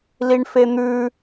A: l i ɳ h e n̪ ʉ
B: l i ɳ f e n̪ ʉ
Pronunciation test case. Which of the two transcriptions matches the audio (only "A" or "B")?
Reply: B